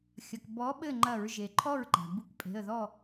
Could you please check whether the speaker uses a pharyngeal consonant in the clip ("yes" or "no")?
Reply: no